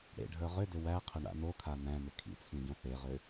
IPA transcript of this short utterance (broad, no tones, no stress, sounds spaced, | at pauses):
ɽ ḛ ɖʱ ə˞ ʁ ʏ d ʏ w æ qʰ ʏ ɳ a̰ n o kʰ a n æ̃ m ʏ kʰ ḭ t͡sʰ ĩ ɟ õ θ e ʁ ʏ